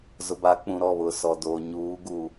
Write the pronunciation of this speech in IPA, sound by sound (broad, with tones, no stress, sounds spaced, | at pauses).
z ʊ˨ b a˨˦ k͡p ũ˨ ɾ ɔ˦˨ β ʊ˨ s ɔ˨ d oː˨ ɲ uː˨˦ ɡ u˨